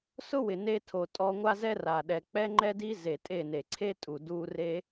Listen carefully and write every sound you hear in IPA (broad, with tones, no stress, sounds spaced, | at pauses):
s ʊ˦ w ɪ˨ n e˧ tʰ o˨ tʼ ɔ˧ ŋʷ a˦ z ɛ˦ r a˨ ɗ ɛ˨ k͡p ɛ˦ ŋ͡ǃ ɛ˦ d i˦ z e˨ tʼ e˦˨ n e˨ ǀʰ e˦ tʼ u˨ d u˧ r e˦